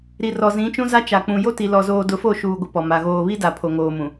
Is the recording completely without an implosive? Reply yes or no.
yes